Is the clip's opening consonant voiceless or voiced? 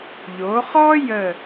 voiced